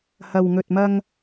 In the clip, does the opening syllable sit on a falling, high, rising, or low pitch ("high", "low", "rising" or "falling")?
low